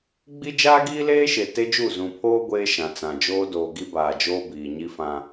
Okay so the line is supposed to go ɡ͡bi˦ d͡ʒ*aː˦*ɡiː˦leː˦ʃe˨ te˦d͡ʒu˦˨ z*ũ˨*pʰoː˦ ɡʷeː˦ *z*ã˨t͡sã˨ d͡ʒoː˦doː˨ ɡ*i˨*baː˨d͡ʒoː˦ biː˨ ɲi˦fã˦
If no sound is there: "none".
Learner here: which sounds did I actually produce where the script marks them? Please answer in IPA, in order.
aː˦, ũ˨, ʃ, i˦

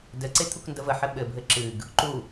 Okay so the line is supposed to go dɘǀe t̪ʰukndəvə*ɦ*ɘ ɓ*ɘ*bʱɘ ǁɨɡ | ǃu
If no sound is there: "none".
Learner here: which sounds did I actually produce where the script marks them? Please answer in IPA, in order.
ħ, ɘ

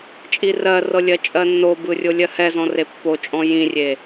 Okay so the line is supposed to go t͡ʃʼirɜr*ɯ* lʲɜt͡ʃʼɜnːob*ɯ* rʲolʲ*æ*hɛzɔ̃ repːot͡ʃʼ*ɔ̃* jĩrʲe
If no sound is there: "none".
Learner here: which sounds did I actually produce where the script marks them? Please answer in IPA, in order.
ɤ, ɯ, ɜ, ɔ̃

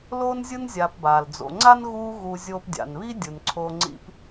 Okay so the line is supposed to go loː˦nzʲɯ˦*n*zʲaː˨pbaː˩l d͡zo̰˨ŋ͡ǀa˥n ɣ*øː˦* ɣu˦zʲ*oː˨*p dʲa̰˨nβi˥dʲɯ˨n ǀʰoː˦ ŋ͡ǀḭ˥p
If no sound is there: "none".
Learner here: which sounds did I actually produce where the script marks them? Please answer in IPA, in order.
n, uː˦, oː˥

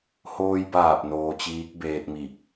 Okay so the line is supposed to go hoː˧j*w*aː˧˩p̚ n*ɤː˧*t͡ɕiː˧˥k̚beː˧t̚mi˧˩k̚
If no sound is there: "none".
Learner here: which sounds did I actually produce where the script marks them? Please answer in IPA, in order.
b, oː˧

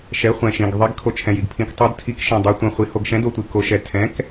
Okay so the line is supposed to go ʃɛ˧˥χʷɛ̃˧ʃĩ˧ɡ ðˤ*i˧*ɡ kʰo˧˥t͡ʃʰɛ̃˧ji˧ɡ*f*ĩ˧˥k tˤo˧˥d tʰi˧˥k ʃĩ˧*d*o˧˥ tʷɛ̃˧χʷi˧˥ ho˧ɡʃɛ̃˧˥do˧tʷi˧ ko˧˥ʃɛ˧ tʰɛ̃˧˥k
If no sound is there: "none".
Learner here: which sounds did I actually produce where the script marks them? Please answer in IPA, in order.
i˧˥, pʰ, dˤ

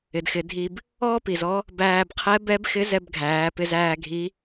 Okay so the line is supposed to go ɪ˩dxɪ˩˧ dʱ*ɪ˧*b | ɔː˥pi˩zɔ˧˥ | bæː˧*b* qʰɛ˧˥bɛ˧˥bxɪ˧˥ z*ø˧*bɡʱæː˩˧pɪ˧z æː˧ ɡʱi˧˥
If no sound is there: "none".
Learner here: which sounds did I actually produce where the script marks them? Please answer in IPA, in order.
i˧, b, ɛ˧

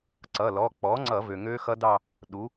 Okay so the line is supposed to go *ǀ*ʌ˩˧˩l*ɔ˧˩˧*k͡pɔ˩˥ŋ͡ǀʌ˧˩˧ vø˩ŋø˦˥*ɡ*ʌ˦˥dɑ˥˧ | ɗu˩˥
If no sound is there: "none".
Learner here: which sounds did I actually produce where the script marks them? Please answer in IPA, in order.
ǀ, ɔ˩˧˩, x

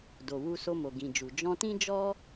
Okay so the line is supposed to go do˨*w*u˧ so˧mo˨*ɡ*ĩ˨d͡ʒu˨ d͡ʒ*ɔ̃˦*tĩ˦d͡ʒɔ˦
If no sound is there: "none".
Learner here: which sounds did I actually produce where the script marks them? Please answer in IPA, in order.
w, ɡ, ɔ̃˧

